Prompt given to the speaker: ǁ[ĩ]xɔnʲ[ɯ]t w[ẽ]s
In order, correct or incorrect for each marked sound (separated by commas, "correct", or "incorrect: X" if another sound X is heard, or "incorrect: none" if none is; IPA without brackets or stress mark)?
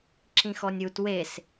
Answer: correct, incorrect: u, incorrect: e